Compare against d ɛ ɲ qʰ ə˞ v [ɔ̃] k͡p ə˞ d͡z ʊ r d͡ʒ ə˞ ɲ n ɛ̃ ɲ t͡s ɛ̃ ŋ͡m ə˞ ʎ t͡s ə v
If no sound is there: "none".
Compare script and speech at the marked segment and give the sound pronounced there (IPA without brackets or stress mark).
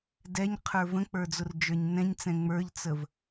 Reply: ə̃